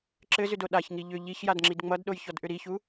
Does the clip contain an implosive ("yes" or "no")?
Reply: yes